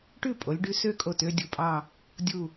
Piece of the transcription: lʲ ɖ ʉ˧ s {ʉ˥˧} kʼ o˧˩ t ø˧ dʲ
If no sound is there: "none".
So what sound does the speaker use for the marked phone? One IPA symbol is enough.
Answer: ø˥˧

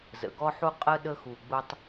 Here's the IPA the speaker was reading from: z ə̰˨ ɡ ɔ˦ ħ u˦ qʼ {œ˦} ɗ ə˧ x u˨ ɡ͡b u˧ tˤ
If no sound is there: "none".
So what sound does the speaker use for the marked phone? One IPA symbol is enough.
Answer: ə˦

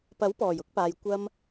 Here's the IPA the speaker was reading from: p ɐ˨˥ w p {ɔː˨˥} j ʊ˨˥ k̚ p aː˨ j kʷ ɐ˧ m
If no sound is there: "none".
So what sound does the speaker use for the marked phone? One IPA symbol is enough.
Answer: ɔː˨˩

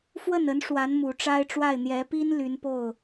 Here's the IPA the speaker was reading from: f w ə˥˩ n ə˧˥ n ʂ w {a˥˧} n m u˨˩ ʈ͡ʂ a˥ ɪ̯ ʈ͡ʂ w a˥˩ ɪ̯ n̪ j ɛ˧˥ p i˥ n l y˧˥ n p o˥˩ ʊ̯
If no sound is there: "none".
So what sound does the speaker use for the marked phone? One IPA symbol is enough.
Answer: a˧˥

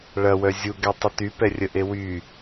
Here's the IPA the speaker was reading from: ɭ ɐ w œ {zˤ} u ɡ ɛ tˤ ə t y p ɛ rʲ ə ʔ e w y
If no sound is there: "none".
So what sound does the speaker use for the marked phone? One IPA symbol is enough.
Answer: zʲ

